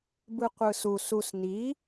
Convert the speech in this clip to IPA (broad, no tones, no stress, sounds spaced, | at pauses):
b ɯ qʷ ɯ s u s u s n i